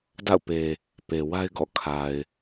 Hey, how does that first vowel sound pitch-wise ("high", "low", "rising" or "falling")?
falling